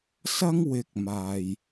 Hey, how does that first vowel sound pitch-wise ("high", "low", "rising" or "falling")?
high